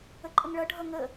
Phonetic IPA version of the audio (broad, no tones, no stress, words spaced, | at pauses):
əǃʼəŋɭʌ ɖʱʌŋə